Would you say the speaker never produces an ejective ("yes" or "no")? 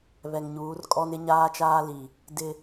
no